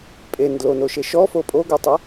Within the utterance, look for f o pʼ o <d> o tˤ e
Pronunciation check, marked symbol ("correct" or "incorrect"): incorrect